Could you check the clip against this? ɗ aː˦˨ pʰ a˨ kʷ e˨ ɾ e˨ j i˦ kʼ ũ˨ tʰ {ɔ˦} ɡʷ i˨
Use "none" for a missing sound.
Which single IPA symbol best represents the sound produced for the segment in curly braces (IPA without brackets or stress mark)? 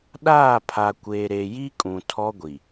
ɔ˦